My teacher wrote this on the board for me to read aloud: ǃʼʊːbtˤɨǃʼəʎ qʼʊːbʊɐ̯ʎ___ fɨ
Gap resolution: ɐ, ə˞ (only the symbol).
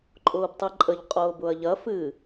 ɐ